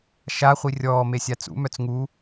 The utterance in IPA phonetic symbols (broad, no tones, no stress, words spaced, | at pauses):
ʃa χʷirʲɔː mesʲat͡sṵ mœt͡sŋu